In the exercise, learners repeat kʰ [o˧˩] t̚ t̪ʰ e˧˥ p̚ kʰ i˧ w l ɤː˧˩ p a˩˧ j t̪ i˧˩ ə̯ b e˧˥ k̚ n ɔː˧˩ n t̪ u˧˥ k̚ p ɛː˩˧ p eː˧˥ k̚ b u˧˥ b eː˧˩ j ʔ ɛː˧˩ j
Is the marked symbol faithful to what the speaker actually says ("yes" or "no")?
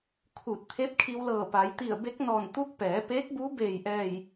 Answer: no